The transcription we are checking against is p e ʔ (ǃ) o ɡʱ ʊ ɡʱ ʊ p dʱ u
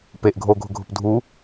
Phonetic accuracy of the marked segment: incorrect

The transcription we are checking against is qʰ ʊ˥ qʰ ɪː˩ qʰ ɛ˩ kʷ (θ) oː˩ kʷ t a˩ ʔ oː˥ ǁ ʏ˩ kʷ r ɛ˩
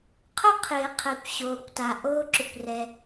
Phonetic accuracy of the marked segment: incorrect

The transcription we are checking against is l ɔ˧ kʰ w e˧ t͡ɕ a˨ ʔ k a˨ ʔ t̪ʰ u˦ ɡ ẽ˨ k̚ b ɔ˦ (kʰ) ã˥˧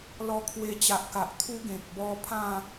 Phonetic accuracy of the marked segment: incorrect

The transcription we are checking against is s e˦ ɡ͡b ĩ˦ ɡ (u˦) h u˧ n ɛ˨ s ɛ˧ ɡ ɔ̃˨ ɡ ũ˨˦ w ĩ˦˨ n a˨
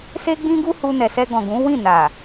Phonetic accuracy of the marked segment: correct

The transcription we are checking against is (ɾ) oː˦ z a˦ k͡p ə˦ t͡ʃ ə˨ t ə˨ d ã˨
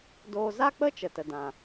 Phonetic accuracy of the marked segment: incorrect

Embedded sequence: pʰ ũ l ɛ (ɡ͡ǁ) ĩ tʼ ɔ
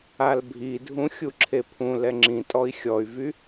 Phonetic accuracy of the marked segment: incorrect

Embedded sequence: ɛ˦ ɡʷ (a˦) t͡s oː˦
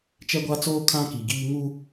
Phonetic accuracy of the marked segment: correct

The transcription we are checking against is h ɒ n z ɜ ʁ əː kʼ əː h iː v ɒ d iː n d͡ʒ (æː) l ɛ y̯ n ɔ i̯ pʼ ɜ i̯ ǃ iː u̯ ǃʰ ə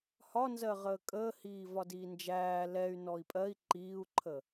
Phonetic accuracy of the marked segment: correct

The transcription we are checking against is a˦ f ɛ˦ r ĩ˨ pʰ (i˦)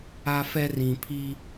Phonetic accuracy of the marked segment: correct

